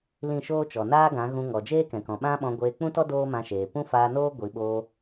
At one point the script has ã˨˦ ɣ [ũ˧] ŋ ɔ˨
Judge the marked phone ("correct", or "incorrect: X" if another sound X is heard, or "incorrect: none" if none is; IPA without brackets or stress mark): correct